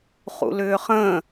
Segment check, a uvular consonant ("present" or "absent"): present